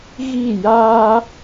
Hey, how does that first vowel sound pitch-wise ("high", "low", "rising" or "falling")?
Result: falling